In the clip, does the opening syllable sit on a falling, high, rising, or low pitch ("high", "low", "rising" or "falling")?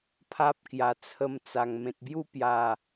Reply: high